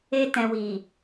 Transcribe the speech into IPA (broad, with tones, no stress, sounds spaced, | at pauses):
e˧ t ɛ̃˨ w i˨